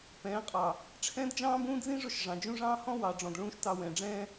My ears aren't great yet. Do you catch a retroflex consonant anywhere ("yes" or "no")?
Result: yes